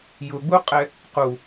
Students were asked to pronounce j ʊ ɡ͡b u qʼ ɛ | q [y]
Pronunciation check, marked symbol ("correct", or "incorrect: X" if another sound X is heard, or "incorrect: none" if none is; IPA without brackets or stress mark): incorrect: u